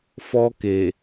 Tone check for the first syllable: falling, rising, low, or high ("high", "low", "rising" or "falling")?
high